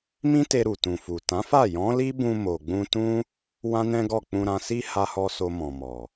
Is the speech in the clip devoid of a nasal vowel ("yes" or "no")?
no